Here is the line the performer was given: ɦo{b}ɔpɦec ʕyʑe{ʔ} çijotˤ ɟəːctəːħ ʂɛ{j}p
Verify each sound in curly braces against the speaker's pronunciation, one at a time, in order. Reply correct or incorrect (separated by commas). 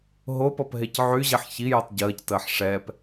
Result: incorrect, incorrect, incorrect